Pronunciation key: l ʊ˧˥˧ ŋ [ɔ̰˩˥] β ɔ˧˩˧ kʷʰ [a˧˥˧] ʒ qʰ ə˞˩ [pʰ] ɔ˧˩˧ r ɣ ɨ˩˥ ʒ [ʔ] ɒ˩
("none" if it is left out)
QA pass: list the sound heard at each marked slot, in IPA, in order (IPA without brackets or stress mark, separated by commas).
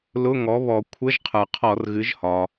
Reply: ɔ˩˥, ə˧˥˧, qʰ, h